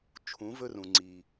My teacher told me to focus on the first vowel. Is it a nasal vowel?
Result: yes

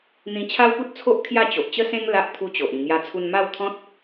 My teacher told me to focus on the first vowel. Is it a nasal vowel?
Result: yes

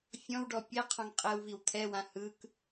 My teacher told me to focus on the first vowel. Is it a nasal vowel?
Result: yes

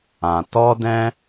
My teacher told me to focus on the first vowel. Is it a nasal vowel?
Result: yes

